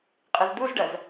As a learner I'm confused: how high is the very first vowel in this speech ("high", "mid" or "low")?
high